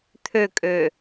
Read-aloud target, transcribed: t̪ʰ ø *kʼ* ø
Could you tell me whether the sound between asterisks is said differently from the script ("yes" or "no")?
no